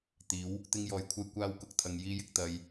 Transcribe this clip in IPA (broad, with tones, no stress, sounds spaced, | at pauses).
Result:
t̪ iː˨˥ w | t̪ ɪ˥ ŋ j ɔː˧ j kʷʰ ɐ˥ j kʷ aː˥ w k ʊ˧ k̚ t̪ʰ ɐ˧ ŋ j iː˥ j ɪ˧ k̚ t̪ ɐ˧ j